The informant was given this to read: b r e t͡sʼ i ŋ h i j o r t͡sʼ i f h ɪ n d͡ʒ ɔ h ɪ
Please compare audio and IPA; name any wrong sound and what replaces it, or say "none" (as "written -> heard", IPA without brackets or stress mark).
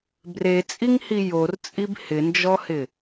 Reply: f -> b